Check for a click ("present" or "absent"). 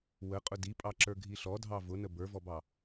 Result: present